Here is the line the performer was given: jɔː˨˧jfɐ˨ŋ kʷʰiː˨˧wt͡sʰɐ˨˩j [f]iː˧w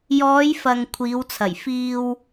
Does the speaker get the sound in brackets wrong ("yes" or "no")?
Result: no